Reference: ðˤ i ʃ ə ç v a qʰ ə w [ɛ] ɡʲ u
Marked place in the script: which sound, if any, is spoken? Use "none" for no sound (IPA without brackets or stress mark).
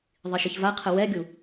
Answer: ɛ